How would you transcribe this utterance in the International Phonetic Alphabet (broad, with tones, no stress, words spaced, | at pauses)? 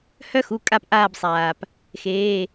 hœ˥xu˩˧˩ kʼa˦˨pʔaː˦˨bsˤaː˩p | xeː˩˧˩